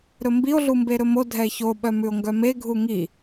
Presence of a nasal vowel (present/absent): absent